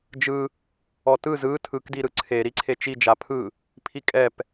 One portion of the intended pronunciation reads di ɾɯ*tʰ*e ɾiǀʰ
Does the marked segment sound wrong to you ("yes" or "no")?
yes